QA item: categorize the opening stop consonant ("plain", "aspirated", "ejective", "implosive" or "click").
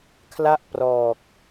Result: aspirated